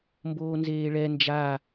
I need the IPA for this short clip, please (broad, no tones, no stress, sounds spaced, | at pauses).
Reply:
m b oː n z eː ɭ ɛ n d͡ʒ a